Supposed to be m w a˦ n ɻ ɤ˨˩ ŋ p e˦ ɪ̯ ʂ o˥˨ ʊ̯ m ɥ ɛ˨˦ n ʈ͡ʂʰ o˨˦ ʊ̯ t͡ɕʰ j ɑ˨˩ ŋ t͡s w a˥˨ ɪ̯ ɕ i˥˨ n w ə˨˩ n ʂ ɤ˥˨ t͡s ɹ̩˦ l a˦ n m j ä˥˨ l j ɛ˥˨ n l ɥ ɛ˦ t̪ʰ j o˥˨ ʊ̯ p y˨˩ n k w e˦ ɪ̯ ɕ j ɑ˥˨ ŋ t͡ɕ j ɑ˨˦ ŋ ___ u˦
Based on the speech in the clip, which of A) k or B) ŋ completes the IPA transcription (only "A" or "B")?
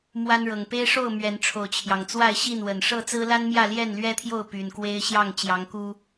A